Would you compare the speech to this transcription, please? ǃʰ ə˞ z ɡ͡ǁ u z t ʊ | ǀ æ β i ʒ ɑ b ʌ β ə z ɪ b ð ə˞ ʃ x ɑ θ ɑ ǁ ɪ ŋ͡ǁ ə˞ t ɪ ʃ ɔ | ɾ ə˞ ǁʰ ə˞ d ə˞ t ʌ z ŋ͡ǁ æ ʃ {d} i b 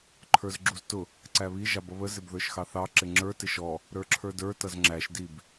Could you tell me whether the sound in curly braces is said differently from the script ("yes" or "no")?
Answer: no